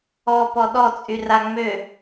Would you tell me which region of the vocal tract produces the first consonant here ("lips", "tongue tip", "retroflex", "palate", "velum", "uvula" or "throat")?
lips